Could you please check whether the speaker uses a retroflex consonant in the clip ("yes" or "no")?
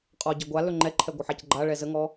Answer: yes